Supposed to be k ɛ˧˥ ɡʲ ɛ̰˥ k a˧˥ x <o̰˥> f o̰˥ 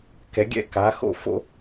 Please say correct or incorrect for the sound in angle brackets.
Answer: correct